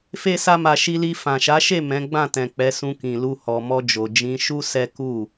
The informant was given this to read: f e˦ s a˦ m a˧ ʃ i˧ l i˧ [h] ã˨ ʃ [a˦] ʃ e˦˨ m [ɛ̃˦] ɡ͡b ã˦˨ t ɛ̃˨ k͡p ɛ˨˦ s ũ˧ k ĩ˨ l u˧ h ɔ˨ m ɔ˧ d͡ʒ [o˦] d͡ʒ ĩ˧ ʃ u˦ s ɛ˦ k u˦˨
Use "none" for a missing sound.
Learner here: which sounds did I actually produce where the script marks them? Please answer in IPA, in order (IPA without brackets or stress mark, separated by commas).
f, a˨˦, ɛ̃˨˦, o˨